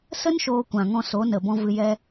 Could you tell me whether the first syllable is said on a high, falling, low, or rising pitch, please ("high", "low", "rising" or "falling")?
high